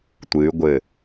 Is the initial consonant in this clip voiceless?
yes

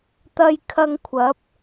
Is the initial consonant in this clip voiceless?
yes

